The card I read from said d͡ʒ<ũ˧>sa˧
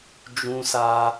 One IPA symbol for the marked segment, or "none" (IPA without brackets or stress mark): ũ˧